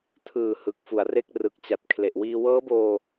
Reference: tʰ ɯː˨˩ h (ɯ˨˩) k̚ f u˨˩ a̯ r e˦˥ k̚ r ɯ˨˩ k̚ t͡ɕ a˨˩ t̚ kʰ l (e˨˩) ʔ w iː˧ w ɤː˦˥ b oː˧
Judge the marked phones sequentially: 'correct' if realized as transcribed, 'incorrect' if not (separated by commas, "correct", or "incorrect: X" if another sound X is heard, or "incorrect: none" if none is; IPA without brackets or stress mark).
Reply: correct, correct